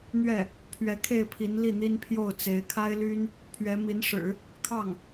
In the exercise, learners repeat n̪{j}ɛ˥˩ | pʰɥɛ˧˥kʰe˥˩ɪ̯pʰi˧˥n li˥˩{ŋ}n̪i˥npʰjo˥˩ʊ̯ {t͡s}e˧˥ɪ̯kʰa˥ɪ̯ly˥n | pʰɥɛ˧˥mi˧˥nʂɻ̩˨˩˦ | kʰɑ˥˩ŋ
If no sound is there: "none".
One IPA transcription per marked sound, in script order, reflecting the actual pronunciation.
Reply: ɥ, none, t͡s

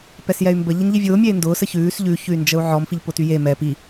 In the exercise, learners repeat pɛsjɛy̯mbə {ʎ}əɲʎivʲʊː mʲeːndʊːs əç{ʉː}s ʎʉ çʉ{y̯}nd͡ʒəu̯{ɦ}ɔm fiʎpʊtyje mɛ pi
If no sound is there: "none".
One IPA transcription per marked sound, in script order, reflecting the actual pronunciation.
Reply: ʎ, ʉː, y̯, ʕ

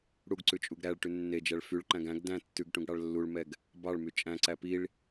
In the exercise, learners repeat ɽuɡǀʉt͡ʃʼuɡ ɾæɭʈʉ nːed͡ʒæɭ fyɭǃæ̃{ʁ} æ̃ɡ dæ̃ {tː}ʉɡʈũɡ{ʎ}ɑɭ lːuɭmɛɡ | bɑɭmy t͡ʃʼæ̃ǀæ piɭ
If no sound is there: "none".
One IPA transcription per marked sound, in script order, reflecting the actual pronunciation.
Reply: ɡ, tː, ɽ

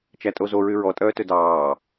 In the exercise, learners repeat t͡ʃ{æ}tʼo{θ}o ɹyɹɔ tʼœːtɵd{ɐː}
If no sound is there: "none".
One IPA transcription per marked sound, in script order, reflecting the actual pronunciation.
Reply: æ, z, ɑː

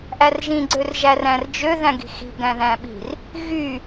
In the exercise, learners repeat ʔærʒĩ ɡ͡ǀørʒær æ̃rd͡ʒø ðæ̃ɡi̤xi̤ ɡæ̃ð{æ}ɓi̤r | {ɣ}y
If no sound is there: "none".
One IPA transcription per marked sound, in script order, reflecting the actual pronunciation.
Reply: æ̃, ɣ

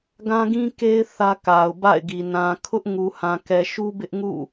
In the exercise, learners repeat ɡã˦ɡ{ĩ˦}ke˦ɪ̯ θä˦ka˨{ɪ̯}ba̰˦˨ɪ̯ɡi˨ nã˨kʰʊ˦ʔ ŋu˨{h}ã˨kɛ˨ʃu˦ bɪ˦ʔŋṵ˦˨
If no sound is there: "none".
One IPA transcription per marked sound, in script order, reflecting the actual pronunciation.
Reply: ĩ˦, ʊ̯, h

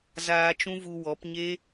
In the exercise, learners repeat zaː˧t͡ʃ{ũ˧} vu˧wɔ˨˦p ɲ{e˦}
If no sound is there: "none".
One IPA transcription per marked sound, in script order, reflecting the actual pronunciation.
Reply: ũ˦, e˦

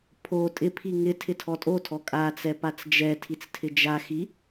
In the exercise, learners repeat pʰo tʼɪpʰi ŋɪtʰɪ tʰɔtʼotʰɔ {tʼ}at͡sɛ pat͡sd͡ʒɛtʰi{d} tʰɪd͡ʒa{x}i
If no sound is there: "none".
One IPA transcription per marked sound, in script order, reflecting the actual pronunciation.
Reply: kʼ, t͡s, x

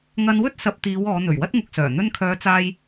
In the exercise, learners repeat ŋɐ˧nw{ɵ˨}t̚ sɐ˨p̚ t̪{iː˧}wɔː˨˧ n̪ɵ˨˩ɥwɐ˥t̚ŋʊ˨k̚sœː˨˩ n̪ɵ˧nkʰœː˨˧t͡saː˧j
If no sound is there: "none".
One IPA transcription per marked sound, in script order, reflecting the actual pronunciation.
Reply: ɵ˥, iː˨˧

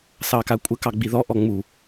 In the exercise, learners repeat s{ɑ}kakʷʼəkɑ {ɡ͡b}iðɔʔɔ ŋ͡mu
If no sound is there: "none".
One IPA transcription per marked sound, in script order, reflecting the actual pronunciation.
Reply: ɑ, ɡ͡b

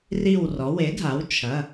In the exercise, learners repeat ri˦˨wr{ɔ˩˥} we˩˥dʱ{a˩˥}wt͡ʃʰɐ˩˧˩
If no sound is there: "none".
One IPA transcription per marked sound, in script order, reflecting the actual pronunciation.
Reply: ɔ˩˥, a˩˥

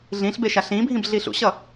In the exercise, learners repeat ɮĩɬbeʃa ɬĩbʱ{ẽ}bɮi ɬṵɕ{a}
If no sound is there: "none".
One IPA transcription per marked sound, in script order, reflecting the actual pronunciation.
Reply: ĩ, ʌ

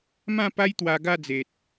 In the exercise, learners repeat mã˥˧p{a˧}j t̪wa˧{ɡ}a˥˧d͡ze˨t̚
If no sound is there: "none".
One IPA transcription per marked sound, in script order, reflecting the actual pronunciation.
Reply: a˦, ɡ

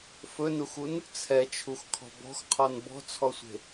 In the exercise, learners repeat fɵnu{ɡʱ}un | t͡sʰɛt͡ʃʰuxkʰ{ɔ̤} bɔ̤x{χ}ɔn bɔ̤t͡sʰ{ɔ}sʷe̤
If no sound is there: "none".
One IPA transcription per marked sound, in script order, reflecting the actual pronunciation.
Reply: x, ɔ̤, qʰ, ɔ

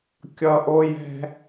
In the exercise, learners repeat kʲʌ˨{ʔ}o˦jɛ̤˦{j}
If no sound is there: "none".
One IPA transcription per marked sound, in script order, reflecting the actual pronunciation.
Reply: ʔ, none

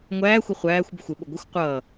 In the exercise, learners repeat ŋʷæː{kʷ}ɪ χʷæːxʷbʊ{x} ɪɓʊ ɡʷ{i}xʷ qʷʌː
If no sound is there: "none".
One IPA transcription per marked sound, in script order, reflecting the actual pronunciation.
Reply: xʷ, xʷ, ɪ

